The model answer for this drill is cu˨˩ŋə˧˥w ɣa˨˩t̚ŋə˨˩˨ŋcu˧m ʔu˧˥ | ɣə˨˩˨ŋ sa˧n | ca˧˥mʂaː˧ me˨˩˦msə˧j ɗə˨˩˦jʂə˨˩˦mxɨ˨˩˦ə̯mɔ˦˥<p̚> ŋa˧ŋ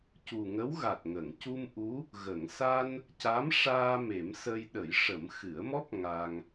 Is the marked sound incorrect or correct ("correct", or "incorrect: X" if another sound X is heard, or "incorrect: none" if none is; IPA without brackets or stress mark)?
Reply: correct